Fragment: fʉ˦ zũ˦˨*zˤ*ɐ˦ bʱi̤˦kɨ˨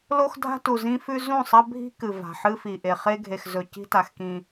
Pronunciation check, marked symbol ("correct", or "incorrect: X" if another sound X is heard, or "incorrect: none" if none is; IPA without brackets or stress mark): incorrect: sˤ